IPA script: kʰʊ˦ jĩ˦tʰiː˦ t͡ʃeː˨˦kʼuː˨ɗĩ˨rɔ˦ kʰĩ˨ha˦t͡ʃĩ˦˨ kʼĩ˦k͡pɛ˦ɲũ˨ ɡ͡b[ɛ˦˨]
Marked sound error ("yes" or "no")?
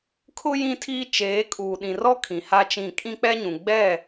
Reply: no